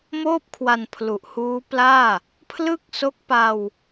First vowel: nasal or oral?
oral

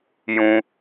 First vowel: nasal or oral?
nasal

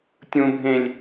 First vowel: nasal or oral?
nasal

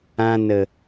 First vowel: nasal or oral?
nasal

